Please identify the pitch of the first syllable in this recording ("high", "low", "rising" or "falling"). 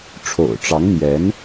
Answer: low